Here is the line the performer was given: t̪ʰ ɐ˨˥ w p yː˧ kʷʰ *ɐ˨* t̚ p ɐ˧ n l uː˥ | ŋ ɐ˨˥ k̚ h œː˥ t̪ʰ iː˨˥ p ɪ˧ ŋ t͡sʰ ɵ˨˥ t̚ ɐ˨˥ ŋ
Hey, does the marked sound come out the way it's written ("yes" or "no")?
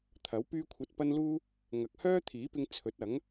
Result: no